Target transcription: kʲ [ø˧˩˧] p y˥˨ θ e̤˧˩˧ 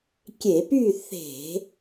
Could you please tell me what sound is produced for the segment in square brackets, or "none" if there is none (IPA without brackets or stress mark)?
e˧˩˧